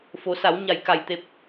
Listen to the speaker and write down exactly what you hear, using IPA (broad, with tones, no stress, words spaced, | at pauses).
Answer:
fo˩˧sa˩˧w ɲa˧˩jka˧˩jt̪e˧p̚